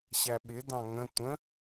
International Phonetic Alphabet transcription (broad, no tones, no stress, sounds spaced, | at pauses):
ɕ æ ɓ ɪ d ɑ̃ ŋ ə̃ tʷ ə̃